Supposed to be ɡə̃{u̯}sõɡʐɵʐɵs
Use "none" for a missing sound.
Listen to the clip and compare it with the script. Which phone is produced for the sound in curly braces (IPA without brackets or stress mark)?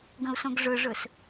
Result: u̯